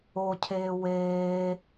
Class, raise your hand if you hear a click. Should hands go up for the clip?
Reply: no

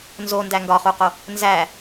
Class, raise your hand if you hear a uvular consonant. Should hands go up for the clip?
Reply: yes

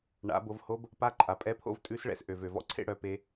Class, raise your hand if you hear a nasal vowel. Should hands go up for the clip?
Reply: no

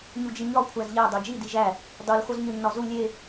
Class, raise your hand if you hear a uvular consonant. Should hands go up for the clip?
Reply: no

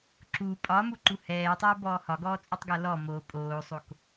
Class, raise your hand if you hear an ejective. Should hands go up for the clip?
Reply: yes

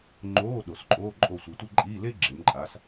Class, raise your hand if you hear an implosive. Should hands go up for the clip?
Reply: yes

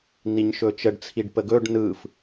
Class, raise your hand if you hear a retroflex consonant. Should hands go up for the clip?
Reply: yes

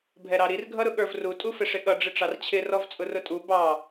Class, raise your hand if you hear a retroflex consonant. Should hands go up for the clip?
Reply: yes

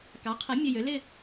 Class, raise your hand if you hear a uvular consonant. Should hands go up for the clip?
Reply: yes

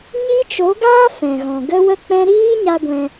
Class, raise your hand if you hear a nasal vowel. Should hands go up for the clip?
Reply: yes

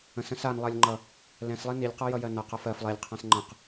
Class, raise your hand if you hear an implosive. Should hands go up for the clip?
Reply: no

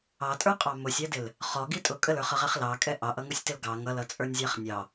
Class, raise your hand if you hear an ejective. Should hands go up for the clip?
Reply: yes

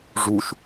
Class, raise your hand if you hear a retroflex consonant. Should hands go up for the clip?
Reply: yes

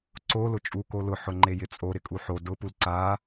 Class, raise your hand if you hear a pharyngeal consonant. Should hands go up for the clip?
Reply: yes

